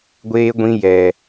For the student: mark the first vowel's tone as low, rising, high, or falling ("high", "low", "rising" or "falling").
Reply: high